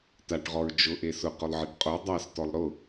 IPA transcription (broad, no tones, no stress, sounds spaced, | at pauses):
t a ʈ ʁ ɔ ɹ d͡ʒ ʊ ʔ e s ʊ q ʊ lˠ ʕ e ʈ qʼ o dˤ a s t ɔ lˠ ɾ ʊ